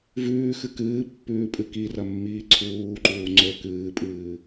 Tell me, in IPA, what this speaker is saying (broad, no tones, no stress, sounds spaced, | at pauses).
v ʉː x ɨ k ɨː pː ʉː pʼ ɨ k i r ɐ mː iː ǀʰ uː ǃ uː ŋ͡ǀ ɵ k ɨː pʼ ɨː